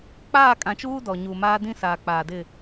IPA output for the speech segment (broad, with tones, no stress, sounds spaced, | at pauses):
k͡p aː˦˨ kʼ ã˨ t͡ʃ uː˦ d ɔ˨ ɲ u˨ m aː˦ d ĩ˦ s aː˨ k͡p aː˨ d ɪ˦˨